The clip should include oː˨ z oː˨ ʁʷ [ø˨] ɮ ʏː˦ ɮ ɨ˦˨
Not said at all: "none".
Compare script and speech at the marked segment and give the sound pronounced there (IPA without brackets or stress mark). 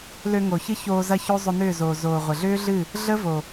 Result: ə˨